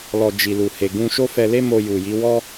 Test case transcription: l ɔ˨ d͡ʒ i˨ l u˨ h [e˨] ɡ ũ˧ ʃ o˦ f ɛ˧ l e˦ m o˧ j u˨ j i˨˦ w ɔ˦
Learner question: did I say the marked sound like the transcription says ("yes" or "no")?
yes